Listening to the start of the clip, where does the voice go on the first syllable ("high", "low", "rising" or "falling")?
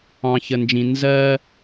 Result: low